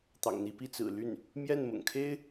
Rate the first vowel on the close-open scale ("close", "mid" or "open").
open